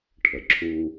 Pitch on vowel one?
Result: low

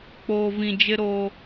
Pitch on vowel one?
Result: low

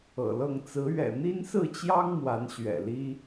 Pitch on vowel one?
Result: low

